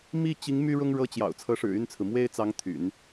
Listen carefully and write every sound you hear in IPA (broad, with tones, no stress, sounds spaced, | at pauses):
m i˥˩ t͡ɕ i˧˥ ŋ m y˥ ɻ ʊ˥ ŋ ɻ ɤ˥˩ t͡ɕ j ɑ̰˨˩ ʊ̯ t͡sʰ ɤ˧˥ ʂ ɻ̩˨˩ y˥˩ n t͡sʰ ɹ̩˩ m w e˥ ɪ̯ t͡s ɑ˧˥ ŋ t̪ʰ y̰˨˩˦ n